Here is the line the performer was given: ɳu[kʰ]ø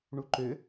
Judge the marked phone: incorrect: ǃ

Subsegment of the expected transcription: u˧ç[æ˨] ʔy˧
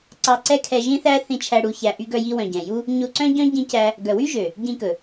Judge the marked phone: incorrect: æ˧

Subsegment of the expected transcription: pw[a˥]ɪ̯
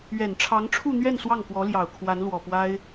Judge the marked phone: correct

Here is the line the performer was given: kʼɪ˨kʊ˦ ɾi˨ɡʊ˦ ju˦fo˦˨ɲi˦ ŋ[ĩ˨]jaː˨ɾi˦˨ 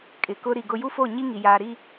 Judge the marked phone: incorrect: i˨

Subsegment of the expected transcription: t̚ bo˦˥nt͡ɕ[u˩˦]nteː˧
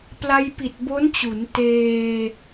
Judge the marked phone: correct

